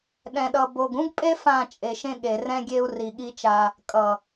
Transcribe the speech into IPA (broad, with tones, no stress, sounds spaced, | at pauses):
ɗ ɛ̃˨ ɗ ʌ˨ b o˨ ɡ ũ˦ ɡ pʼ e˦ f ã˦˨ t͡ʃʼ e˨ ʃ ẽ˦ ɠ e˨ r ɛ̃˦ ɡʲ e˦ u̯ r i˨ ɠ i˦ t͡ʃ a˦ | kʼ ʌ˨